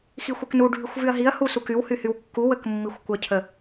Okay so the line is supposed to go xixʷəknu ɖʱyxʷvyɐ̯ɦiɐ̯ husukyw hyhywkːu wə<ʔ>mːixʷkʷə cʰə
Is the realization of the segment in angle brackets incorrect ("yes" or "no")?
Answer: yes